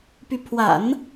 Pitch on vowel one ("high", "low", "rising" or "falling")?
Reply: rising